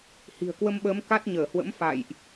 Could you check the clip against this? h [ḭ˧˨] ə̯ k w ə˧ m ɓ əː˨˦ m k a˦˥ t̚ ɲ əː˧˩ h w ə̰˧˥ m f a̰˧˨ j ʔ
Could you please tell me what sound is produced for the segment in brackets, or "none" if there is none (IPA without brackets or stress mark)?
i̤˨˩